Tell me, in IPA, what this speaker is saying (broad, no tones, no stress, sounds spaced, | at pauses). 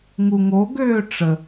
ŋ u ŋ o ɡ øː ʈ͡ʂ ə